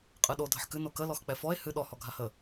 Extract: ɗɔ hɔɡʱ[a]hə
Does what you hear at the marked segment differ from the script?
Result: no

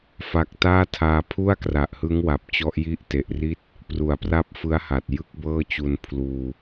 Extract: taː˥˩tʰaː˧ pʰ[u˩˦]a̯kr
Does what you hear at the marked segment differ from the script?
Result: yes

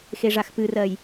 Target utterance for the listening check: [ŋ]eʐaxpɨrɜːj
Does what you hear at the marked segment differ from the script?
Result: yes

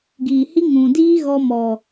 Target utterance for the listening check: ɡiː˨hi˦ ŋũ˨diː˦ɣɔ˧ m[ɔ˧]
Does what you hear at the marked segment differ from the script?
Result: yes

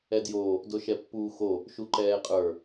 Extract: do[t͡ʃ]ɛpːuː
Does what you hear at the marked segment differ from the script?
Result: yes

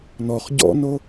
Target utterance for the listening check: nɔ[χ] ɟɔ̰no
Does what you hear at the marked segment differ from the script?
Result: no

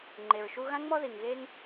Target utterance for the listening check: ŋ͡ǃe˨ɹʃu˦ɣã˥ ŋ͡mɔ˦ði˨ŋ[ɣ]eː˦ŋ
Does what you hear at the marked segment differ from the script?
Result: no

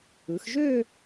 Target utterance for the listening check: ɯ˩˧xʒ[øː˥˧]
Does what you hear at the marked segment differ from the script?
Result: no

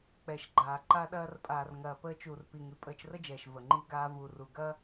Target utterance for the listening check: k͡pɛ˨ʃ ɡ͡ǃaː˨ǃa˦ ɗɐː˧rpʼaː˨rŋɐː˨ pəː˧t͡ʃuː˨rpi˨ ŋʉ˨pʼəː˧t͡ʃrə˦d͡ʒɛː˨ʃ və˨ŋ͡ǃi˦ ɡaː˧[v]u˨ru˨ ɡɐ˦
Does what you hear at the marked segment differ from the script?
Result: no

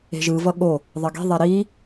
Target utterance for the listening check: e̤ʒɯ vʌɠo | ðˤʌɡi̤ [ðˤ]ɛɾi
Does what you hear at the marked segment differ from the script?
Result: no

